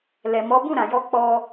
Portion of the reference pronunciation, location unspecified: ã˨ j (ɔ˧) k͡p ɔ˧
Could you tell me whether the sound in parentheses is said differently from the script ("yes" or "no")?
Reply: no